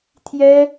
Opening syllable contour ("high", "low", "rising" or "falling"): high